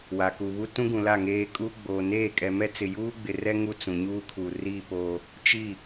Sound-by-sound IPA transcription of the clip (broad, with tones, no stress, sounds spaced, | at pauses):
w a˨ k u˨ β u˦ t ũ˦ ɡ ũ˨ l a˦˨ ŋ eː˦ kʼ uː˦ ɡ͡b oː˨ n eː˦˨ kʼ ɛ˨ m ɛ˦ t͡s ɪ˨ j uː˦ ɡ͡b ɪ˨ r ɛ˦ ŋ u˦ t͡s ũ˨ ɲ uː˦ kʰ u˨ r i˦˨ p oː˦ | t͡ʃ i˦˨